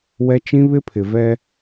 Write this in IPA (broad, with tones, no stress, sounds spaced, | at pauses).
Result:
w ɛ˦ t͡ʃ ĩ˦ β ɪ˦ pʰ ɪ˨ v ɛ˦